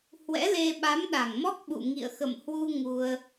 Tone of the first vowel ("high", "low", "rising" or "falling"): rising